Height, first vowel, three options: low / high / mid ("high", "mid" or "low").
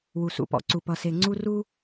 high